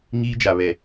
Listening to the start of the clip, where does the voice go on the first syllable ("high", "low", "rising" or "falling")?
high